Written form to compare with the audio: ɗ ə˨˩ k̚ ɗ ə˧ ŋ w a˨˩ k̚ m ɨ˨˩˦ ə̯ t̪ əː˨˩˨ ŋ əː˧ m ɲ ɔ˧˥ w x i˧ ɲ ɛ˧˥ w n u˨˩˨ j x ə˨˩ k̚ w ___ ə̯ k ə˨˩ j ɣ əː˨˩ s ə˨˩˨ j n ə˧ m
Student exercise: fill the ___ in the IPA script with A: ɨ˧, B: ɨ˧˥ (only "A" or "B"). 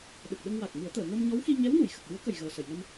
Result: B